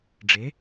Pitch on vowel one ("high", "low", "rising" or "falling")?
rising